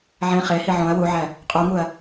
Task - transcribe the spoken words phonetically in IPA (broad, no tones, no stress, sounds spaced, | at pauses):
ʕ ẽ χ e h i ʕ õ ɐ̯ w u ʕ æ | qʼ u ŋ u ɐ̯